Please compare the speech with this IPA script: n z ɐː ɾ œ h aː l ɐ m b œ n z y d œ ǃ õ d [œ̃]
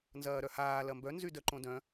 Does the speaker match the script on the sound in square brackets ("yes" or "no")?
yes